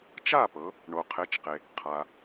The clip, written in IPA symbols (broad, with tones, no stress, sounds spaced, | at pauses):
t͡ʃ a˥˩ p ɤ˩˧ | ɳ o˩ qʰ e˩˥ t͡ʃ q e˩ | qʰ a˩